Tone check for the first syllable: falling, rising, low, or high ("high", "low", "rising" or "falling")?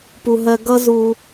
low